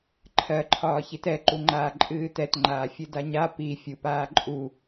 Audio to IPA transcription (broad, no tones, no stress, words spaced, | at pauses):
ǃʰɜǃʰɒːçit ɛǃuŋ͡ǃaː ǃʼɨːtɛtŋ͡ǃaː fʲɨdaɲa pi fʲupaːǃʼu